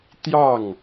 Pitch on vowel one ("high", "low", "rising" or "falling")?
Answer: falling